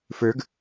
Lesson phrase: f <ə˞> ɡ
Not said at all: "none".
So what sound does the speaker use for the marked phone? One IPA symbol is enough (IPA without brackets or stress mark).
ə˞